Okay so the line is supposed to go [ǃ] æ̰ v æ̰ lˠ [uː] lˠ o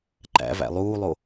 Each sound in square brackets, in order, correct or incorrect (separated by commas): correct, correct